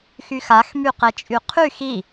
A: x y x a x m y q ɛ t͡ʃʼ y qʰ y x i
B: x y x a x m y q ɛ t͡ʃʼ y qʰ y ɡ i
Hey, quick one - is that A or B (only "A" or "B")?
A